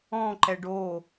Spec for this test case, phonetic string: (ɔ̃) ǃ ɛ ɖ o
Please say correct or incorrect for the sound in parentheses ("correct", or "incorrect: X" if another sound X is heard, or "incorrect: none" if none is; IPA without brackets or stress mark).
correct